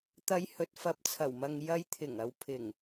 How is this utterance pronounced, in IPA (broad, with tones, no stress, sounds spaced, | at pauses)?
t̪ ɐ˨˧ j h ɵ˨ t̚ f ɐ˨˥ p̚ t͡sʰ ɐ˨˩ w m ɐ˨ ŋ j ɐ˨˧ j t̪ʰ ɪ˨˩ ŋ ɐ˨ w pʰ ɪ˨˩ ŋ